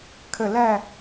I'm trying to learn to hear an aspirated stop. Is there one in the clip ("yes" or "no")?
yes